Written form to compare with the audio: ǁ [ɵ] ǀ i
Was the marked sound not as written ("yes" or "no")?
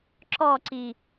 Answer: yes